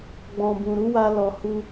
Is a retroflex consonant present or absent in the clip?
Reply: absent